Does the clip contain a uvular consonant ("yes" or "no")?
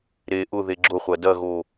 yes